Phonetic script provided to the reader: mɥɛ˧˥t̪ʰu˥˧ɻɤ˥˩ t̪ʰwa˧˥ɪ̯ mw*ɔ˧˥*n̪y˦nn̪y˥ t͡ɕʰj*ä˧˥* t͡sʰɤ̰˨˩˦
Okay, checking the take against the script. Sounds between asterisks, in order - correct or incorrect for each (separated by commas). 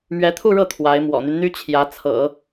incorrect, correct